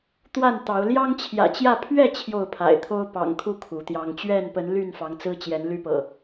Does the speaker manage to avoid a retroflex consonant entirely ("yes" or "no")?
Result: yes